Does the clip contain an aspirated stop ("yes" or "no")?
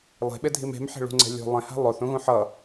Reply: no